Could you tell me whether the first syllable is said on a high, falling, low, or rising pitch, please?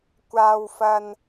low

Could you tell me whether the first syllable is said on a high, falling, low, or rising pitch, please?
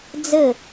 falling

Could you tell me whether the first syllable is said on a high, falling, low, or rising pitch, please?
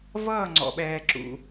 falling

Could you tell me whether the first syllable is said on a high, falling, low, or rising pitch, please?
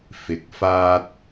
rising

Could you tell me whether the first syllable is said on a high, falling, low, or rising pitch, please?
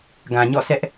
low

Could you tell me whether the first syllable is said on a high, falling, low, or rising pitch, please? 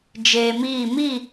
low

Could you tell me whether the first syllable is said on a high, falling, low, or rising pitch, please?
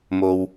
low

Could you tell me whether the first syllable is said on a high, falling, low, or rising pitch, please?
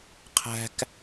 high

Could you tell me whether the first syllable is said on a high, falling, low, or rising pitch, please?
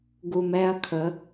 low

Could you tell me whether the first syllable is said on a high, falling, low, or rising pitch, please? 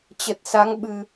low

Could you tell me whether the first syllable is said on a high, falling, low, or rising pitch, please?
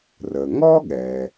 low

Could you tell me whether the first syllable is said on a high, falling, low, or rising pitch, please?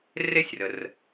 high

